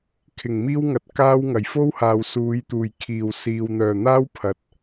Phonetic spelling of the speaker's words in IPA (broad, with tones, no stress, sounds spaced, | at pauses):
kʰ ɪ˨˩ ŋ m iː˥ w ŋ ɐ˨˥ t̚ k aː˥ w ŋ ɐ˨˩ j f o˥ w h aː˨ w s uː˨˧ j t̪ uː˨˩ j kʰ iː˨˩ w s iː˨ w n̪ œː˨˩ n̪ aː˥ w pʰ ɐ˨ t̚